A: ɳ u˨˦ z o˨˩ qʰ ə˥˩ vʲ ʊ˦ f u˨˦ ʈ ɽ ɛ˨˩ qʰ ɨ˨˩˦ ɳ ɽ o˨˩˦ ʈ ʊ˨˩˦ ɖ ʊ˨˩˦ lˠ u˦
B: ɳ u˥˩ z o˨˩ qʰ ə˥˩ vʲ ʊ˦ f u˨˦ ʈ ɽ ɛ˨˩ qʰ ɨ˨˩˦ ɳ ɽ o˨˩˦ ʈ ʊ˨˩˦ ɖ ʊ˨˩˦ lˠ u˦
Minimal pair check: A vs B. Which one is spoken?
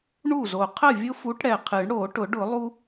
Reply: B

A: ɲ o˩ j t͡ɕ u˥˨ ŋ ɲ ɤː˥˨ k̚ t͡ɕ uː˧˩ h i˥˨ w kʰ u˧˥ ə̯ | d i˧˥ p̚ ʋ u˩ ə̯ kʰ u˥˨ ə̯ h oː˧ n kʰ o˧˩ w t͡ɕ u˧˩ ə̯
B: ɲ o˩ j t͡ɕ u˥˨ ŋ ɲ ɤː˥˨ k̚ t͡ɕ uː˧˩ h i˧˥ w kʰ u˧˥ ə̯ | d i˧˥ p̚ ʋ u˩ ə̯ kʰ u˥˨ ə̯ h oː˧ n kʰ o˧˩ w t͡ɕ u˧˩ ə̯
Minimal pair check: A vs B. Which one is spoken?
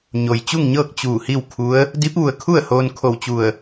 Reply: A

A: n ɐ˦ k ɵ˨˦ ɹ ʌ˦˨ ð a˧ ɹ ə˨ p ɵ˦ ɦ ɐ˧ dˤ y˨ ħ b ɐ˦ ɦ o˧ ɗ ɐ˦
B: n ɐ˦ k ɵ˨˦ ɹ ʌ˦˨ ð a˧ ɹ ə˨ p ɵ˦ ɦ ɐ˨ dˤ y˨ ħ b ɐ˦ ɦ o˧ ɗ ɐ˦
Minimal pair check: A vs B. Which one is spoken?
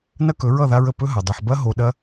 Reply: B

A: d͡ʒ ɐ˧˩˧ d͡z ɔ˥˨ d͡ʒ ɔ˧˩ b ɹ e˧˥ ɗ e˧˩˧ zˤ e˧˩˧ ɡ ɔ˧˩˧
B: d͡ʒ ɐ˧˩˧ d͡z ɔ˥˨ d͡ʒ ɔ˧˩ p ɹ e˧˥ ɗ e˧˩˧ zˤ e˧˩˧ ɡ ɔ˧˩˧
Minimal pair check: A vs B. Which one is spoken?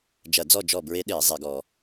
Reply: A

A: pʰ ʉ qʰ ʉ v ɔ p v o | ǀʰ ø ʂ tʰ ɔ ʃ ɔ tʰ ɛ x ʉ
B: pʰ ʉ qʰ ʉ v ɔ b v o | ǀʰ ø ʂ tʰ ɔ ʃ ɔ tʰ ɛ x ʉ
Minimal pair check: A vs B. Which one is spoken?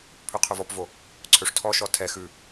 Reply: A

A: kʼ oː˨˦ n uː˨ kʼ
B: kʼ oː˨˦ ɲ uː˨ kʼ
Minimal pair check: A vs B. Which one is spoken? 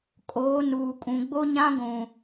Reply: A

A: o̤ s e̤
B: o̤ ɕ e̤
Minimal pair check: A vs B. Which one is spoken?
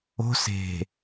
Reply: A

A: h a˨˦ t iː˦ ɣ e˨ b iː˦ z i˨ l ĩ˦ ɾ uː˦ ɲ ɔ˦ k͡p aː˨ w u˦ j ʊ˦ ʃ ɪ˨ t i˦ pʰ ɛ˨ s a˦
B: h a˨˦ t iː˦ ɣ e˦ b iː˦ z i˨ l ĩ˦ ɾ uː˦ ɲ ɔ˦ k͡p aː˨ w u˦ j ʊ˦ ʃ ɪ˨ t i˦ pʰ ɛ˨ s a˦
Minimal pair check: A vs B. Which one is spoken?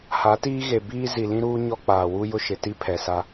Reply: A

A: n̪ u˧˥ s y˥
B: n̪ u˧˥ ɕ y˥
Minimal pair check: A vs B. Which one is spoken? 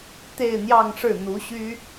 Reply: B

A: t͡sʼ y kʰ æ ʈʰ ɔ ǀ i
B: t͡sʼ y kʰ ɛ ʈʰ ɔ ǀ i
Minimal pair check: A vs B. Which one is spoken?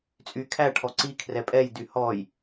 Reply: A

